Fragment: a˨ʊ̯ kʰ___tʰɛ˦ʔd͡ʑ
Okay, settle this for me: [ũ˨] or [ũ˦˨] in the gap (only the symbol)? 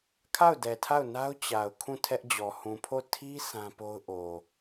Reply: ũ˦˨